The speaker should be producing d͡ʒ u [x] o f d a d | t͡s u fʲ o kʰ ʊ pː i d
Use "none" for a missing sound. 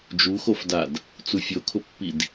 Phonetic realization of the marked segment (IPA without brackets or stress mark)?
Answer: x